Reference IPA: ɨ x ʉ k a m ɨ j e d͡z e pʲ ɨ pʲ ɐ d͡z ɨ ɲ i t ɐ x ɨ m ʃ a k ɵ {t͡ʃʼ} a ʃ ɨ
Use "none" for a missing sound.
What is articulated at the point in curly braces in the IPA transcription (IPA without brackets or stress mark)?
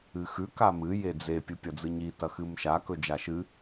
d͡ʒ